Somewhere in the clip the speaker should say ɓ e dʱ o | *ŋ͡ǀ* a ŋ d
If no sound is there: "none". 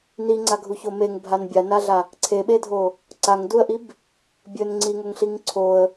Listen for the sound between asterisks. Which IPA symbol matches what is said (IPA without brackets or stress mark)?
ǀ